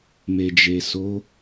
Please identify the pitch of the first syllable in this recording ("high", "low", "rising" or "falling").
low